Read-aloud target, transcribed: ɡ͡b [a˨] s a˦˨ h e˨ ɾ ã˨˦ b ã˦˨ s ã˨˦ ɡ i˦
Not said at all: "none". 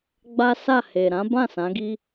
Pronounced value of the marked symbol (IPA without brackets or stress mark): a˦